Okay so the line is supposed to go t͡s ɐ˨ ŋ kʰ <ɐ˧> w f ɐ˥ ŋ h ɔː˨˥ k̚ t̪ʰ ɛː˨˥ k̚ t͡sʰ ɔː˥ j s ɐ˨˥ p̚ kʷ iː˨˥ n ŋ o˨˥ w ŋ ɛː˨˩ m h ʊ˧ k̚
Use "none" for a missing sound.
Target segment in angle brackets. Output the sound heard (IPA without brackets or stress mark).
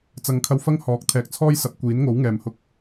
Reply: ɐ˧